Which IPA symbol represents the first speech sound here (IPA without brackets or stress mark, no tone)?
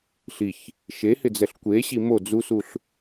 ɬ